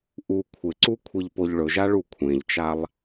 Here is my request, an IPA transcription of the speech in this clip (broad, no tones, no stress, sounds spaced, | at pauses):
ʔ u kʷʰ ɪ ǀ u kʷʰ i ʎ p o ʎ ɭ ɵ ʒ a ɭ u kʷʰ ẽ ʎ t͡ʃ a lˠ